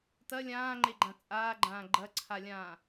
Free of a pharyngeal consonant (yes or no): yes